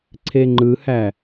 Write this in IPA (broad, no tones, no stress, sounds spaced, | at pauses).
ǀʰ e ŋ͡ǃ ɯ h æ